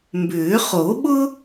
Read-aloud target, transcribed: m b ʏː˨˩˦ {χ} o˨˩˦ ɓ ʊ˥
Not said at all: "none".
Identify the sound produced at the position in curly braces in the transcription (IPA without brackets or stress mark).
χ